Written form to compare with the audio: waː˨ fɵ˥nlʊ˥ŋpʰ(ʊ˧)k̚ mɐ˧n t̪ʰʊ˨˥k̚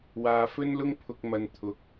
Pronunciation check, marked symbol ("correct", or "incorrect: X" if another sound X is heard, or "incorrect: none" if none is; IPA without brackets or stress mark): correct